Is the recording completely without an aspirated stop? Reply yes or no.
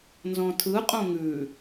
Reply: no